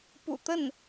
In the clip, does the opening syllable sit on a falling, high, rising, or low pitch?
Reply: low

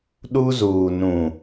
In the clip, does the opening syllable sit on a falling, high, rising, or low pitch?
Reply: high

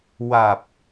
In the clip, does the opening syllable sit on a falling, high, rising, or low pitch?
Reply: low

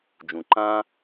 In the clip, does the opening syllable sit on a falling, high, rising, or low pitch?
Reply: low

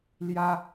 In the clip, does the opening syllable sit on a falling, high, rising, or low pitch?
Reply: high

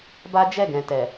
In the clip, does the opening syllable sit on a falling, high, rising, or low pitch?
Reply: high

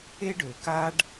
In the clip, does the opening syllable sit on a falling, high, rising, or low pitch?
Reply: high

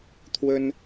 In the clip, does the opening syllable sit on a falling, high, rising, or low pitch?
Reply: high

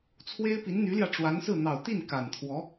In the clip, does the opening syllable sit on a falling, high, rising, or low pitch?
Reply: high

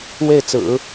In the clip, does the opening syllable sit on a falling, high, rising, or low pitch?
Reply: falling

